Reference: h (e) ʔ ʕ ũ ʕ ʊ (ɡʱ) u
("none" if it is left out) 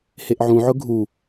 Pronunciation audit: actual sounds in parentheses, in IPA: e, ɡʱ

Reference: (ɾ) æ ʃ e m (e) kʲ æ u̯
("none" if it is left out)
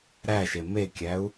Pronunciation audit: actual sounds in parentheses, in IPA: ɾ, e

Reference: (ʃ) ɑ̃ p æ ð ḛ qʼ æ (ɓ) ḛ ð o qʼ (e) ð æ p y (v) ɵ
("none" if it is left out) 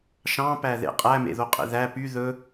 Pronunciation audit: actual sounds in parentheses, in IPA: ʃ, m, ḛ, ð

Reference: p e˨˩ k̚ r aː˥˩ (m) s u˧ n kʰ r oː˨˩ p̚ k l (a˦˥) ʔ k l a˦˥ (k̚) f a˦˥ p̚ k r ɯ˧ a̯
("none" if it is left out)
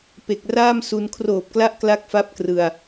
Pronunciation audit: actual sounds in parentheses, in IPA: m, a˦˥, k̚

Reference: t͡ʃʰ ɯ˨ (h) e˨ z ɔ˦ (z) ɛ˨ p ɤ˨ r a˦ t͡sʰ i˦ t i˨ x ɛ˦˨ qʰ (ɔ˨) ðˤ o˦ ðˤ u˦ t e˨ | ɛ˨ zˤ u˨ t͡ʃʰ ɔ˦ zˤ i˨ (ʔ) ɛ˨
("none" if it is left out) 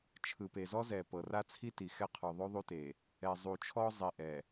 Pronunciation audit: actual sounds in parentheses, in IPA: p, z, ɔ˨, ʔ

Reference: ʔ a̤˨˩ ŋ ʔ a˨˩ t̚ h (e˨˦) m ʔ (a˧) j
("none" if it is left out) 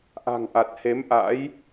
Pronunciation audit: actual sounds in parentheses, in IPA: e˨˦, a̰˧˥

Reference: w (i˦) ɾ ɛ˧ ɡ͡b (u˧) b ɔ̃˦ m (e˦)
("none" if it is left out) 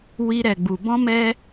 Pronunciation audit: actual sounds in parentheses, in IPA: i˦, u˧, ɛ˦

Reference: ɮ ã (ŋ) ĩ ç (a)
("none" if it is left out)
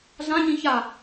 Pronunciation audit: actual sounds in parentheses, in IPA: ɲ, a

